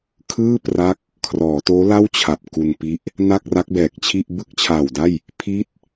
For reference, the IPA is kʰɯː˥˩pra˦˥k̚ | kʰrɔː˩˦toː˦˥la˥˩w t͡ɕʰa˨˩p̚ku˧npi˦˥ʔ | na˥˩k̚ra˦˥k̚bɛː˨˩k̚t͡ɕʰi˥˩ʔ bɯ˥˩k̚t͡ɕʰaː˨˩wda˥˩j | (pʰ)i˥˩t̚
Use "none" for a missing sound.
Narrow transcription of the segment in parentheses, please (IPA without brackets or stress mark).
pʰ